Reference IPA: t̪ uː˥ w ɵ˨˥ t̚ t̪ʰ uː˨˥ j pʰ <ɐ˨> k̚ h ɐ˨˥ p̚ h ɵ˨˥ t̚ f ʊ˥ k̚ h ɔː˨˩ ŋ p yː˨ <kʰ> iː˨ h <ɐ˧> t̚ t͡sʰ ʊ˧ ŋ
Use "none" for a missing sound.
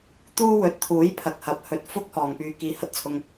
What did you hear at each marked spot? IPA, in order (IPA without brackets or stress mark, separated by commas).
ɐ˨, k, ɐ˧